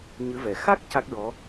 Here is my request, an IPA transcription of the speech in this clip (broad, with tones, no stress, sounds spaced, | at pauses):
ɲ ɨ˧˥ v ɛ˨˩ x a˦˥ k̚ c a˦˥ k̚ ɹ ɔ˧˥